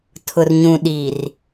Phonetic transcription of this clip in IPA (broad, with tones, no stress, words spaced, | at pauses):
tʰʊ˨rɲũ˨ɗi˨r